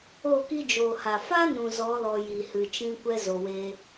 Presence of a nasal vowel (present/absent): present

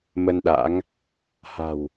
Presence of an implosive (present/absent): present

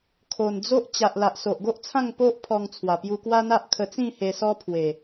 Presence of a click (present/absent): absent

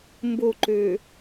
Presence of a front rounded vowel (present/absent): present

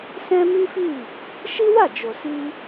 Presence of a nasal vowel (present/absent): present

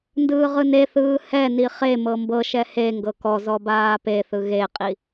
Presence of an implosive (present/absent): absent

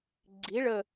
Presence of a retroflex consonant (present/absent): present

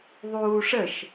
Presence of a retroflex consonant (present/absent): present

